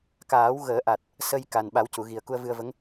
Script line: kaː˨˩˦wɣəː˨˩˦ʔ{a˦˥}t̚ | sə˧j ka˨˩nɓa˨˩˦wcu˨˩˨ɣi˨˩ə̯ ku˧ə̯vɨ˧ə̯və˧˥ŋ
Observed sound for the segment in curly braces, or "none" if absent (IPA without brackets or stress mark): a˨˩